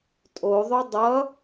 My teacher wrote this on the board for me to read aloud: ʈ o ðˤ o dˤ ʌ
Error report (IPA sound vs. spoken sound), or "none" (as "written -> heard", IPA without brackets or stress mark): ʈ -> tʼ